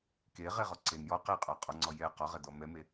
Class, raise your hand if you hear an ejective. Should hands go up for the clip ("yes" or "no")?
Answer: yes